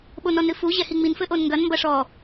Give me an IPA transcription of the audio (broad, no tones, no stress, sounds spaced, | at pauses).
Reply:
ɓ o n ɔ n ɾ ɨ f u ʑ ɛ h i ŋ͡m i n f ɘ ʔ o n ŋ ɡ ɐ n m b ɐ ʂ ɔ